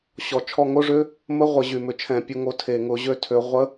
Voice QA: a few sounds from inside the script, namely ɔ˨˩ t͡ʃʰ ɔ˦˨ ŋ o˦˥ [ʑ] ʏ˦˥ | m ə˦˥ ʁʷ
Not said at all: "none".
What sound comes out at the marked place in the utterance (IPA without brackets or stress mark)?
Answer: ʐ